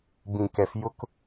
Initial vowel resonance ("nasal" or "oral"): nasal